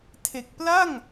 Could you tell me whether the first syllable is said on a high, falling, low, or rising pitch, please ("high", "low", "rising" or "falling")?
low